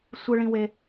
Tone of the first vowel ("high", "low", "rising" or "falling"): high